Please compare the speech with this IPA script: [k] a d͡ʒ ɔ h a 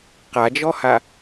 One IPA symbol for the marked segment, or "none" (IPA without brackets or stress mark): q